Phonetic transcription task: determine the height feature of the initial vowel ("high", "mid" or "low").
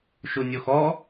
high